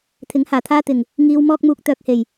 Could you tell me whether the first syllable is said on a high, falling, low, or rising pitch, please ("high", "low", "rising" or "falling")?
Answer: rising